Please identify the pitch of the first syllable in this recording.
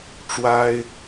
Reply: high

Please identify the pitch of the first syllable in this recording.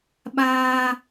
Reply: high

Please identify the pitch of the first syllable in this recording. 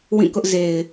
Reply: falling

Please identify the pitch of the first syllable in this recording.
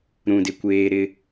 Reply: low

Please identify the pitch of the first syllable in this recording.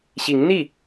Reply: rising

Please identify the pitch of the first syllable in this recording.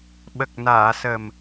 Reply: low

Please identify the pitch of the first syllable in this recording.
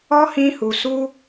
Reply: high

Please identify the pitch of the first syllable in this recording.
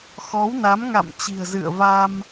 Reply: rising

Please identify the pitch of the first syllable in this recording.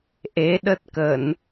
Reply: rising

